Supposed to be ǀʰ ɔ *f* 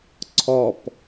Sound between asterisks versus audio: incorrect: p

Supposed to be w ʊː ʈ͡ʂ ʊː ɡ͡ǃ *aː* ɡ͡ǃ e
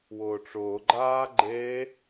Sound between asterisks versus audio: correct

